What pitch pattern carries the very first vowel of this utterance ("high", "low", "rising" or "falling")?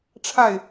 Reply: falling